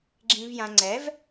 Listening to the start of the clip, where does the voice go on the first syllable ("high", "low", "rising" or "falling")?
low